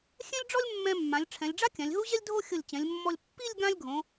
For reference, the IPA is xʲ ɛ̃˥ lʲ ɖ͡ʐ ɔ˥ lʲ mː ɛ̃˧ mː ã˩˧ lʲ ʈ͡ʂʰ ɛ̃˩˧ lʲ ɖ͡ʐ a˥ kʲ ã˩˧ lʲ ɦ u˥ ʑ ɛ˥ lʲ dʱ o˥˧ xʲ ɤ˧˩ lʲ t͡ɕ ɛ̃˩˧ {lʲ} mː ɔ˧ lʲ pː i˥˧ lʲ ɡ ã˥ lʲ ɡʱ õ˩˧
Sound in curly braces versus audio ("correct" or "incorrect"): correct